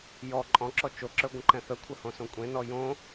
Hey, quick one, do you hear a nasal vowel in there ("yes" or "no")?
yes